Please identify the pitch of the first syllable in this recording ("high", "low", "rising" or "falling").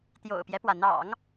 low